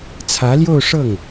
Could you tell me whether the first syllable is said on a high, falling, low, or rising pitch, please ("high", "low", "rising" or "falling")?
rising